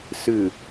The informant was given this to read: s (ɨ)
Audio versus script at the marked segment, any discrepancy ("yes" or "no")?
no